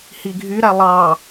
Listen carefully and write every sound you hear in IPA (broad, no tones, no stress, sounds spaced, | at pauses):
h i ɡʱ y ɾ æ lˠ ɑ